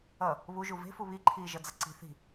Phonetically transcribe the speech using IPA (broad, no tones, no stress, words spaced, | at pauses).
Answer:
ʌ | βuʒu ve̤fu βiǃʰiːʒʌd͡zʌ ǀi̤ θi̤